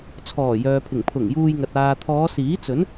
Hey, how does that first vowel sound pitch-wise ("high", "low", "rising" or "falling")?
low